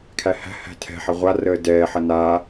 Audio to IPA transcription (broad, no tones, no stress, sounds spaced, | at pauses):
kʰ æ h æ̤ h æ̤ tʰ ɛ̤ ħ ɐ ʁʷ a r əː d ɛː ħ ɐ n aː